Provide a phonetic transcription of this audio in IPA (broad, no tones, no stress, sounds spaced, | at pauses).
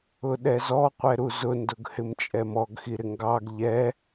ʊ ɗ ɛ z ɔ qʷ ɛ ɾ u z ʊ n d ʊ ɡ h ɪ m t͡ʃʼ ɛ m ɔ ɡ x i ɾ ɪ ŋ ɡ ɑ ɡ ʎ ɛ